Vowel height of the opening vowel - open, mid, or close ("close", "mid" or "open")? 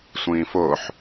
close